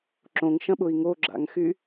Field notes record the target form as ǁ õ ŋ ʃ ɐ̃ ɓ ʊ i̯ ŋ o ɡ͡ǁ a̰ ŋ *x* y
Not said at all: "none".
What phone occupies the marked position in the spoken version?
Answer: x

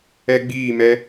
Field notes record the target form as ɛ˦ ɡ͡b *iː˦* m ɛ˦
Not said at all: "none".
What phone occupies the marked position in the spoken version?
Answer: iː˦˨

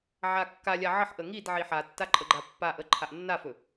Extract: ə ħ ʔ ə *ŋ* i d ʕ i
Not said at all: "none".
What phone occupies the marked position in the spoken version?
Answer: ŋ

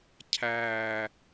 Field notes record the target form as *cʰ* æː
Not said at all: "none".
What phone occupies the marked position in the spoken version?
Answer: cʰ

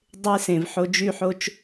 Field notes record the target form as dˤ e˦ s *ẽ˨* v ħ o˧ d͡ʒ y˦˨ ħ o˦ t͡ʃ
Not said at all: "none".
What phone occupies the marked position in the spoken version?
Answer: ẽ˨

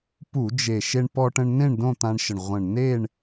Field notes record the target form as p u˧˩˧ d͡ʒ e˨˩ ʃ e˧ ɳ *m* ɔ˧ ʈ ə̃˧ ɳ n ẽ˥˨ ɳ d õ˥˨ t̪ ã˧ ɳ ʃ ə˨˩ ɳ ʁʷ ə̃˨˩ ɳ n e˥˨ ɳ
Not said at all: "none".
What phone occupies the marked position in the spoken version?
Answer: p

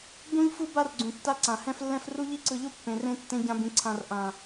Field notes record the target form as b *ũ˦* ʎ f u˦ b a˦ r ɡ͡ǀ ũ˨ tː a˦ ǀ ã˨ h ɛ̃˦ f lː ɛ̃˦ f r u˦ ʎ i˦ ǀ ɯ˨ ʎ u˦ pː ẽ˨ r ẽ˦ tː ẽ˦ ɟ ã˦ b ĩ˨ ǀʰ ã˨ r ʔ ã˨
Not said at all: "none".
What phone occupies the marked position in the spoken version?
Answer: ũ˦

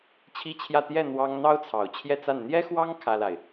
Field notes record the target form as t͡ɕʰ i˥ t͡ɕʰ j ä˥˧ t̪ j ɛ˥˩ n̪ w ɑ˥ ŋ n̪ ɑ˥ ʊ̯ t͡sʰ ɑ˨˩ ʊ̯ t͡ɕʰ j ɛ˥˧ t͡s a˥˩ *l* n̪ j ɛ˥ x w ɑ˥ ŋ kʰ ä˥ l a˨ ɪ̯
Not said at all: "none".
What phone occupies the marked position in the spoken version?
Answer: n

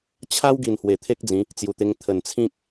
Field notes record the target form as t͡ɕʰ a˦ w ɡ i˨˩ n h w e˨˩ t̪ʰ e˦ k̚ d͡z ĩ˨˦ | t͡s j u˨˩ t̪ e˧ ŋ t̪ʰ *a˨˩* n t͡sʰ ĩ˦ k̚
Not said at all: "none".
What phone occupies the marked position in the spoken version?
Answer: ə˨˩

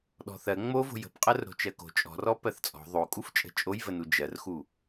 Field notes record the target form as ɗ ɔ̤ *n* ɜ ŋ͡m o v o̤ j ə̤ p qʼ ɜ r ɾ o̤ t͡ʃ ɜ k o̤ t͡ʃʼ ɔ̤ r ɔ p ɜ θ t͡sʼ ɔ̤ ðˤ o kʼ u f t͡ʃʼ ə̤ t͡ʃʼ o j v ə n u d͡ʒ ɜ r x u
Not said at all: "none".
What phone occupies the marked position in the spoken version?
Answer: θ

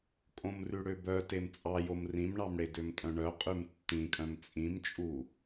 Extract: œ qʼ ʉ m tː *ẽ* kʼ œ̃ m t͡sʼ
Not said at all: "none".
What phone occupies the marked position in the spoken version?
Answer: ĩ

